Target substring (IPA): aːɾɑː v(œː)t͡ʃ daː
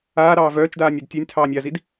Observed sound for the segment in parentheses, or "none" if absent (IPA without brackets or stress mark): œː